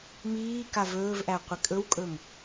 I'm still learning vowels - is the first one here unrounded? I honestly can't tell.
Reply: yes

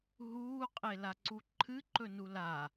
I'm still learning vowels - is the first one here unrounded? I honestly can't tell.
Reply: no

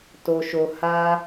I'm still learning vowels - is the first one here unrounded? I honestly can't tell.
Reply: no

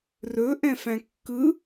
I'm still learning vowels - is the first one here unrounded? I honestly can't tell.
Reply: no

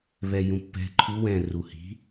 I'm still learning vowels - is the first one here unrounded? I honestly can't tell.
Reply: yes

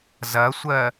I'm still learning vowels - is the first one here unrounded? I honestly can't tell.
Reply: yes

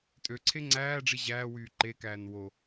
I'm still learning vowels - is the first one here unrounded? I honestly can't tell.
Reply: no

